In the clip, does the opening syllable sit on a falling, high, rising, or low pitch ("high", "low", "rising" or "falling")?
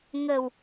low